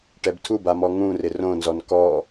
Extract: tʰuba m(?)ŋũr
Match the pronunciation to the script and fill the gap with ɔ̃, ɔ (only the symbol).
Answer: ɔ